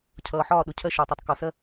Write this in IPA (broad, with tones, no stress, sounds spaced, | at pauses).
cʰ ʌː˨ ħ ɒː˦˨ ɗ ʊ˨ cʰ ɜ˦ ʃ ɒː˨ tˤ ɜ˨ tˤ k ɒ˨ s ɜ˦˨